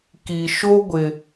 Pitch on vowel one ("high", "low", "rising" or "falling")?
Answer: low